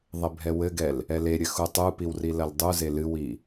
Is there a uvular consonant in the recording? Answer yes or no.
no